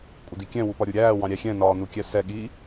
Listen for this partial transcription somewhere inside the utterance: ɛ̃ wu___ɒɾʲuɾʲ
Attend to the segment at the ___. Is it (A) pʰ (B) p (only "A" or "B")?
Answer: B